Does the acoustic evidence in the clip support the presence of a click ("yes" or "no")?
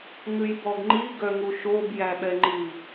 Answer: yes